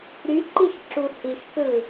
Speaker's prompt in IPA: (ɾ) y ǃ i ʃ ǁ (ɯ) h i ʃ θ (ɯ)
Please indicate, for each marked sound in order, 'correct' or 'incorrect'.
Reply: correct, incorrect, correct

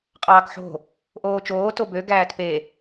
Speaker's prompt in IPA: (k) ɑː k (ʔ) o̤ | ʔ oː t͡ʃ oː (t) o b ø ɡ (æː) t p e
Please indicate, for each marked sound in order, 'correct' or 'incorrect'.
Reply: incorrect, incorrect, correct, correct

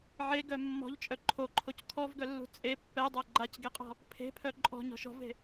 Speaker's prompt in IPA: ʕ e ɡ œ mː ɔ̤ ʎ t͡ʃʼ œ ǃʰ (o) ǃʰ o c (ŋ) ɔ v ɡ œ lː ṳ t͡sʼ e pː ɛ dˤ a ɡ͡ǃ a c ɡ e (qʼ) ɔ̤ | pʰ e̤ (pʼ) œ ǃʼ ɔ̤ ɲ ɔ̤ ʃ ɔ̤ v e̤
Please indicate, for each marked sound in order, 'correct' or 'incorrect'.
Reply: correct, incorrect, correct, incorrect

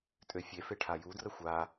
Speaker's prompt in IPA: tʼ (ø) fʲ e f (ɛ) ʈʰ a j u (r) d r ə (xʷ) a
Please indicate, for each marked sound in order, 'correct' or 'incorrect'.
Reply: correct, incorrect, incorrect, correct

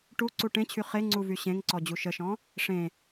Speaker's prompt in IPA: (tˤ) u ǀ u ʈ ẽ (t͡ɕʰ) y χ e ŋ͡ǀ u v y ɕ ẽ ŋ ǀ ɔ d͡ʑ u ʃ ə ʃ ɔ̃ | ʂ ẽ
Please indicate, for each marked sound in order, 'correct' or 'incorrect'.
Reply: incorrect, correct

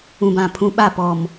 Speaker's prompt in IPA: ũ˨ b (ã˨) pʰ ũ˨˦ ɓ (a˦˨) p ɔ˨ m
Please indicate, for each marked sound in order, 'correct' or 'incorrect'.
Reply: correct, correct

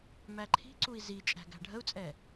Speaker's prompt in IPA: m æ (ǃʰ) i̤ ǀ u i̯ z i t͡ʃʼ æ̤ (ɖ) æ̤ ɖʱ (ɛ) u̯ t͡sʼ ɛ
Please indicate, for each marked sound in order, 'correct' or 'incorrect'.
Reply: correct, incorrect, incorrect

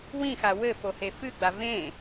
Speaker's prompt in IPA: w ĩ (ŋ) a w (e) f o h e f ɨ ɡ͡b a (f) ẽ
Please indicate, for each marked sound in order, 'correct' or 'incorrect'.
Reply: incorrect, incorrect, incorrect

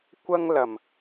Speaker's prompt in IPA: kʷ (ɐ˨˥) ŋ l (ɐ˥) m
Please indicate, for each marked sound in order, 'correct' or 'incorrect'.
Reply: incorrect, incorrect

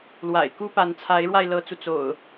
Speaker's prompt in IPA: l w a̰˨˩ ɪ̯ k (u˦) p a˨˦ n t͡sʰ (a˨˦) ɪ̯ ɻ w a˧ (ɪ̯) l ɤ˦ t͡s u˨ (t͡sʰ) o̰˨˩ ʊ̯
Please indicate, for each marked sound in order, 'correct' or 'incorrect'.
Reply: correct, correct, correct, incorrect

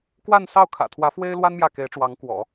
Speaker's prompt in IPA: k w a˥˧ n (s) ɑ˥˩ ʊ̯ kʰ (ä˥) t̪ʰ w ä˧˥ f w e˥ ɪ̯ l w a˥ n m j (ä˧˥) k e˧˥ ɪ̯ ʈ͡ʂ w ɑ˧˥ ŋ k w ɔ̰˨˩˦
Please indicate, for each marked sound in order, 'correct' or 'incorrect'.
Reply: correct, incorrect, incorrect

